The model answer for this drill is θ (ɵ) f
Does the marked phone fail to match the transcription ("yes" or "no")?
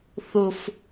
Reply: yes